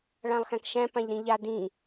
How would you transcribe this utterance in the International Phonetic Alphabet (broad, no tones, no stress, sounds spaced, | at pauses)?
ɭ ã lˠ x æ̃ k ʃ æ̃ p ã ʎ ɾ ĩ ʎ a d ĩ